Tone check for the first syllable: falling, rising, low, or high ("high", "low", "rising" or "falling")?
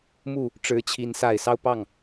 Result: falling